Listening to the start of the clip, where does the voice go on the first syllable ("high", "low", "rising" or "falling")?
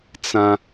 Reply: high